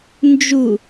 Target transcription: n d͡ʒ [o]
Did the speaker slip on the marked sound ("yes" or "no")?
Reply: yes